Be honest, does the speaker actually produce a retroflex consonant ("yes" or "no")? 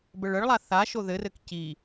yes